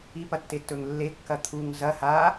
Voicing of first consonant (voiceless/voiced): voiceless